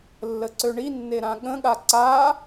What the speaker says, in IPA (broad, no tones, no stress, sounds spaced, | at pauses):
lː ə ǀ ø ɳ i nː e ɾ ã ɠ ə̃ ɠ a ǀ a